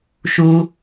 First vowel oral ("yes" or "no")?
yes